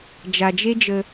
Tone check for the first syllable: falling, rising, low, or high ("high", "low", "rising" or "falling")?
low